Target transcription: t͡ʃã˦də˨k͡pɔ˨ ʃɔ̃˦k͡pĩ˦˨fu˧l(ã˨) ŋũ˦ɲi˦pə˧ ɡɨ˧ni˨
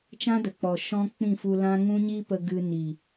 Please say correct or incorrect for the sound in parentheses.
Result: incorrect